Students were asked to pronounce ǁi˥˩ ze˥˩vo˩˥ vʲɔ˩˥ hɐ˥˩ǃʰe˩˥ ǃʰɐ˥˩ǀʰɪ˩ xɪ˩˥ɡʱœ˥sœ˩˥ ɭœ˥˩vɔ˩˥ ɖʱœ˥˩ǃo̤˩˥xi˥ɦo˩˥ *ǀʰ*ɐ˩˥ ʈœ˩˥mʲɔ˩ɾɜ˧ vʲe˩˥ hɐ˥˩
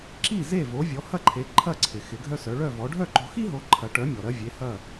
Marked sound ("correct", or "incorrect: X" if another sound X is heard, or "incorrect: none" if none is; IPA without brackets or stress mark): incorrect: ǃʰ